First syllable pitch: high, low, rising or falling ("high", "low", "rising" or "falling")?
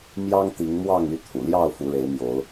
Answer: high